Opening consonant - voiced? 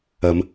yes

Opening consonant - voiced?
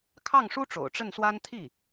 no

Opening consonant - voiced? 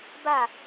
yes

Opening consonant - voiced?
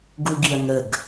yes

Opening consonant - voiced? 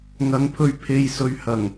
yes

